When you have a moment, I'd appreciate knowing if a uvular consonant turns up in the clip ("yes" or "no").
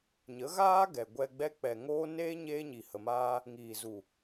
no